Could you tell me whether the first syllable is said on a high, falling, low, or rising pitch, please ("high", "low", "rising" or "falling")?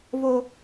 high